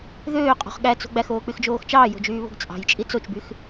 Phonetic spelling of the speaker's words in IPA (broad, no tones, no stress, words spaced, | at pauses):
ðøːqʼo̤χ ɠæt͡so̤ ɡ͡bæxoːk͡pyxd͡ʒoːx t͡ʃɑːjo̤d͡ʒyːβo̤ɡ t͡sʼɑ̤jt͡ʃʼi t͡sot͡ʃbyx